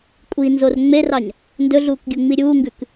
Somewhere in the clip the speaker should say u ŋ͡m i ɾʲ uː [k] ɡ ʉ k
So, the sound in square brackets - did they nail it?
no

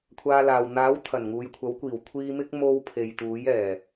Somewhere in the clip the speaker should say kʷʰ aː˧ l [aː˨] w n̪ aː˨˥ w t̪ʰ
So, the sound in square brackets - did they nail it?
yes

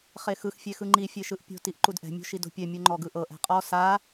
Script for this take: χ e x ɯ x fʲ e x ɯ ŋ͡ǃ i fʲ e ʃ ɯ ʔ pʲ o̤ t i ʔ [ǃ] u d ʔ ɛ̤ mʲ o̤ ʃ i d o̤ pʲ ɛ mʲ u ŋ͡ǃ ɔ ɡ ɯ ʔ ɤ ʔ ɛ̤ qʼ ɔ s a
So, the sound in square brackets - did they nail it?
yes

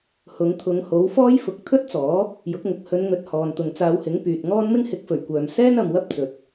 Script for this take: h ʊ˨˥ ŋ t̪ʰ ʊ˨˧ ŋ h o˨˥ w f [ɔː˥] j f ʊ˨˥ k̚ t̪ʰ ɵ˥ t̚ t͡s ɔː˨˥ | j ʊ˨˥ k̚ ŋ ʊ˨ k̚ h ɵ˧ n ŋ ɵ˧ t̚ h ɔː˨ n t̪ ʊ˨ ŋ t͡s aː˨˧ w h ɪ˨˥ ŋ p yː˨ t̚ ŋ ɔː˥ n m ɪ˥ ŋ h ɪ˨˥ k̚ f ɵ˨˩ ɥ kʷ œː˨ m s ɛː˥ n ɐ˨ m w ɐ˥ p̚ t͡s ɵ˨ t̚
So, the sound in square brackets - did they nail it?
yes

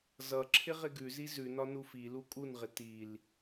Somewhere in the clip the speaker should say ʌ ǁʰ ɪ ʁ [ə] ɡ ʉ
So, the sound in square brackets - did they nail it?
no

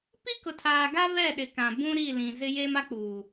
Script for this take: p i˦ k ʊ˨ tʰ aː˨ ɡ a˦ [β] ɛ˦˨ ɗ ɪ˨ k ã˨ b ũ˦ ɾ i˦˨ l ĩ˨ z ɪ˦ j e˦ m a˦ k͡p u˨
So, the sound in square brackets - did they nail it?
yes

